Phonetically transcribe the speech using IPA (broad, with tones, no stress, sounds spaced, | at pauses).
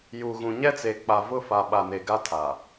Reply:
j u˨ ɣ ũ˨ ɲ ɛ˦ t͡s e˨ k͡p a˨ v ʊ˦˨ f a˨ ɓ a˨ n e˨ ɡ a˦ tʰ a˨